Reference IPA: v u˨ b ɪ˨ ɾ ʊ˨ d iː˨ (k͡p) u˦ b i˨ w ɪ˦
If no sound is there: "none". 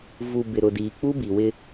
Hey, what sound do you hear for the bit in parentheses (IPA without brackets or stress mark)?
k͡p